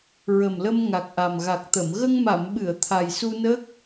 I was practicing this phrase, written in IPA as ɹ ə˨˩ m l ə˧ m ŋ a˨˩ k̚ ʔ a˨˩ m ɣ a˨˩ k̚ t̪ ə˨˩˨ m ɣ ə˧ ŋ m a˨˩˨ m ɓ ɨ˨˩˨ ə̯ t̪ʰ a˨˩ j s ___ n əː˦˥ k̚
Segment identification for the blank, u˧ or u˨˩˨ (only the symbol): u˧